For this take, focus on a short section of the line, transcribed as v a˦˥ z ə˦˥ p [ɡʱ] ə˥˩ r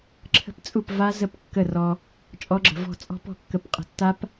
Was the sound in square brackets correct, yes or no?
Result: no